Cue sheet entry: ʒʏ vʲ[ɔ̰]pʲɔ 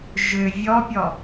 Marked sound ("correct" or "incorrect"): incorrect